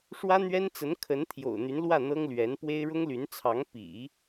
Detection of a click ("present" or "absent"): absent